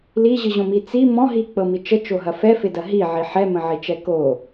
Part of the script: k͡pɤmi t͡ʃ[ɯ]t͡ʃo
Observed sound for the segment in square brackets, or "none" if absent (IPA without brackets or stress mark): ə